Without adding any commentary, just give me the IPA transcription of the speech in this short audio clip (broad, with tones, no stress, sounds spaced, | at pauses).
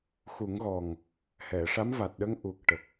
x u˨˩˦ ŋ ɣ ɔ˨˩ ŋ | h ɛ˨˩˨ ʂ a˧˥ m v a˨˩ t̚ ɗ ə˧˥ ŋ ʔ u˨˩ k̚ ʈ ə˨˩ k̚